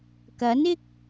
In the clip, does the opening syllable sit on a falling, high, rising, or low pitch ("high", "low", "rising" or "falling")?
rising